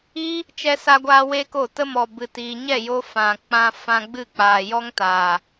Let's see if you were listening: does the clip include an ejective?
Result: no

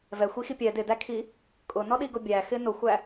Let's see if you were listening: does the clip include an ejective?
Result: yes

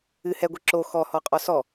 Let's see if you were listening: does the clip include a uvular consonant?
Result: yes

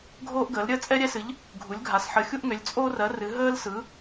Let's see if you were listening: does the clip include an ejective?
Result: yes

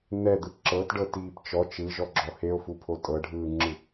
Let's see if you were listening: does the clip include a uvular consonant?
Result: no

